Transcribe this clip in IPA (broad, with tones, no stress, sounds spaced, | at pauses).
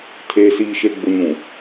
tʰ eː˨ s iː˨ ʃ e˨ ɡ͡b ʊ˨ ɲ ũ˨